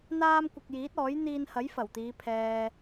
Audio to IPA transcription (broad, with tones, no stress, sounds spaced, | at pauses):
n̪ aː˥ m kʷ ɪ˧ k̚ j iː˨˥ t̚ ɔː˨˥ j n̪ iː˧ n h ɐ˨˥ j f ɐ˨˩ w t̪ iː˨˧ pʰ ɛː˨